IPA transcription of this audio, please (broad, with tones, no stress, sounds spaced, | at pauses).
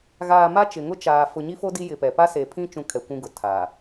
ɣ aː˨ m a˦ t͡ʃ ɪ˨ ŋ ʊ˦ t͡ʃ aː˨ f ʊ˨ ɲ i˦ f o˦ d i˦ j ɪ˨ p ɛ˨ p a˦ s e˨ pʰ ĩ˦ t͡ʃ ũ˦ kʰ ɛ˨ kʷ ũ˦ ɡ ʊ˨ tʰ a˨